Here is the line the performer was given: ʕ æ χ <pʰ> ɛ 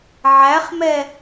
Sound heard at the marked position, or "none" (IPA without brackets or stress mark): m